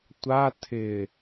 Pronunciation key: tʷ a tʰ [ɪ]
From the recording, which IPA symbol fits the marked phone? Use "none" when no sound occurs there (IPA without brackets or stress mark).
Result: ɪ